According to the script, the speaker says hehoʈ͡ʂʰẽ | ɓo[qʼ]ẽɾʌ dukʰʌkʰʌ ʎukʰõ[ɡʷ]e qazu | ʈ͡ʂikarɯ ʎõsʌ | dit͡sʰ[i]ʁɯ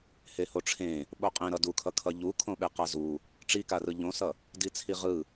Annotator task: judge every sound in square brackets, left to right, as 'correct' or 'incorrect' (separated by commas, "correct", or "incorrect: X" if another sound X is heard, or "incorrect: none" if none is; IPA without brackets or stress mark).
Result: correct, incorrect: ɓ, correct